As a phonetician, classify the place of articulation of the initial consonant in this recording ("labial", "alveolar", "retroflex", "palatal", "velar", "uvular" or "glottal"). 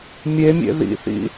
labial